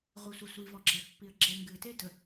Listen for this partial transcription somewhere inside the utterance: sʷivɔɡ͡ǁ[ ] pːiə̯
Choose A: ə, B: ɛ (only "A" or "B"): B